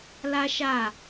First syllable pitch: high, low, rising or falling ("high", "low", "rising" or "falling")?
high